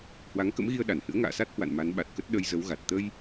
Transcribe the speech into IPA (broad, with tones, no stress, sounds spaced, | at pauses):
h w a˨˦ ŋ k ə̰˧˥ m ɣ i˧ ə̯ ɗ a˧˩ n h ɨ̰˧˥ ə̯ ŋ a̰ː˧˨ s a˦˥ t̚ h w a̰˧˨ n m a˨˦ n ɓ a˨˩ t̚ k ə˦˥ t̚ ɗ ə˧ j z ə˨˦ w ɣ a˨˩ t̚ t̪ ə˧ j